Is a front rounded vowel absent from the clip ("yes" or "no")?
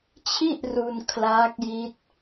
yes